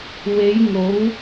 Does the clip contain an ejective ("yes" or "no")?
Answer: no